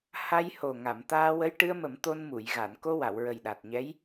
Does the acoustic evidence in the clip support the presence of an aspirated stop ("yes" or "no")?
no